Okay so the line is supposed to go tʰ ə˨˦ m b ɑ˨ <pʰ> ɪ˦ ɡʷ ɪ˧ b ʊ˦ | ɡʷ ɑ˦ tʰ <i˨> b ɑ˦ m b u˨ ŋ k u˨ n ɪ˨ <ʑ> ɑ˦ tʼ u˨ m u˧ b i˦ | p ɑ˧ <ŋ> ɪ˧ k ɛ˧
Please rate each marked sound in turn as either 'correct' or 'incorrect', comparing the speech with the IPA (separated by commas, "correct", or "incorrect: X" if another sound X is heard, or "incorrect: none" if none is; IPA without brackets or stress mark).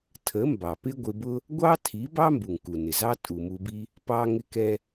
incorrect: p, incorrect: i˨˦, incorrect: z, correct